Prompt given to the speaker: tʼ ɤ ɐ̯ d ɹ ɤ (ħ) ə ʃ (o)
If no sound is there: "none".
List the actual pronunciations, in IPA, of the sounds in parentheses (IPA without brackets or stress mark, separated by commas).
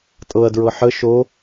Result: ħ, o